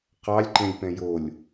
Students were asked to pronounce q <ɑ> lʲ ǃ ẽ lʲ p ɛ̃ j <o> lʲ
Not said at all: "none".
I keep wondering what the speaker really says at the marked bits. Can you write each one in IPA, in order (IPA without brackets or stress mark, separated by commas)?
ɑ, o